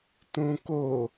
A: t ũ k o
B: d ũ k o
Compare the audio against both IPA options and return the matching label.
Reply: A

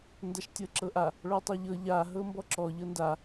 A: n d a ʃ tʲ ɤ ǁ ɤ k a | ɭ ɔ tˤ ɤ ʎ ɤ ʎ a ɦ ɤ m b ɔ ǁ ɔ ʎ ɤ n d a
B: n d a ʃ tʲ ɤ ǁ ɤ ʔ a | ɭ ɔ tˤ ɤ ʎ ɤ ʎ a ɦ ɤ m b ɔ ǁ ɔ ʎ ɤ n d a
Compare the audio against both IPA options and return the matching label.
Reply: B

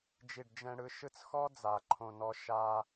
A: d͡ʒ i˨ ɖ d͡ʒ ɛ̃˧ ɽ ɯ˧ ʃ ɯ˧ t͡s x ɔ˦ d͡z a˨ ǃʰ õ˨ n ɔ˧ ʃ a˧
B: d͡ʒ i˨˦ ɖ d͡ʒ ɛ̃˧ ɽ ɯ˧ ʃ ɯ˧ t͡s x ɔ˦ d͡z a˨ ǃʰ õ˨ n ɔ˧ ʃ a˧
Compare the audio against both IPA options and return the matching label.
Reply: A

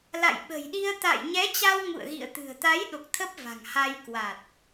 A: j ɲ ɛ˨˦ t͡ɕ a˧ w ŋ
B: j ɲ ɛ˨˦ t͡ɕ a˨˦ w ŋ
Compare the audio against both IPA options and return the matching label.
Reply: A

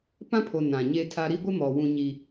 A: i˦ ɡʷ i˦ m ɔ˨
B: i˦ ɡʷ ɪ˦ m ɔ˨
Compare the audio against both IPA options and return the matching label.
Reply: B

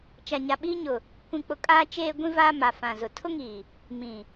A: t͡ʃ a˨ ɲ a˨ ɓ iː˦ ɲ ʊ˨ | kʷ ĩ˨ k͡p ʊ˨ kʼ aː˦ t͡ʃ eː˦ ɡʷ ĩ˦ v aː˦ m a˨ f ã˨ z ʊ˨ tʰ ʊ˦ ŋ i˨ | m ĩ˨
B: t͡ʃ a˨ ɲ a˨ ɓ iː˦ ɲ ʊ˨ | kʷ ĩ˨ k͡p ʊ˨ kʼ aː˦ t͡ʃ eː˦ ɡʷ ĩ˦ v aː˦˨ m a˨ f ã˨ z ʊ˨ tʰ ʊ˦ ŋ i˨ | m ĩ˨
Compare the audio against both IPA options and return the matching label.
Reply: A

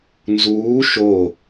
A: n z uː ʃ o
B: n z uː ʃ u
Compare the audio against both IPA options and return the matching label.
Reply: A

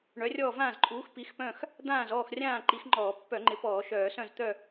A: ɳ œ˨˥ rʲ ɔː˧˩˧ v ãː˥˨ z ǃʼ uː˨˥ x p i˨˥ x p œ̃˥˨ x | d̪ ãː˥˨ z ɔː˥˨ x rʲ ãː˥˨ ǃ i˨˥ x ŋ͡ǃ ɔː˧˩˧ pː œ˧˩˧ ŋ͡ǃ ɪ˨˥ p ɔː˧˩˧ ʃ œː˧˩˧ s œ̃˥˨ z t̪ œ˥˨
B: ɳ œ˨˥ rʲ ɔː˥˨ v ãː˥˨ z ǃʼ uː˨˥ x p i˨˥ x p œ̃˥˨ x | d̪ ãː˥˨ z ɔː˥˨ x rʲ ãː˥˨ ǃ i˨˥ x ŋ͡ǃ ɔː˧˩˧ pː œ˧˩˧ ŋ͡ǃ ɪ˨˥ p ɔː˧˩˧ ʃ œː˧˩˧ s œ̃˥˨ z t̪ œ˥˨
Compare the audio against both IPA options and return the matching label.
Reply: B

